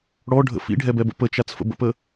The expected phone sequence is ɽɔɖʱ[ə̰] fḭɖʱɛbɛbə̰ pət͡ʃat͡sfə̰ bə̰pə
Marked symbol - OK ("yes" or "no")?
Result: yes